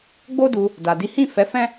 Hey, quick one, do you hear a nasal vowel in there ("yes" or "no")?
yes